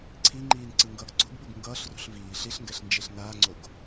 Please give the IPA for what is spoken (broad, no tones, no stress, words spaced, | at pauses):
ǀʰi ŋ͡ǃiːnǀɯŋɡʌːɡ ǀo̤ɡɓuɡ ŋɡʌːɬrṳɬ viː ɬiɬŋɡɛɬ nd͡ʒeɬnaːŋ͡ǀoɡ